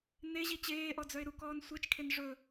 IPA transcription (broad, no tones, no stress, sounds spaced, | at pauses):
n e ʑ i t͡ɕ eː ʔ ɔ d͡z œ ɪ̯ ɾ u k ɔː n sʷ e t͡ʃ kʰ e n ʐ ɵ